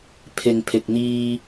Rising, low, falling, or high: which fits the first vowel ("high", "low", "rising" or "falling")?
low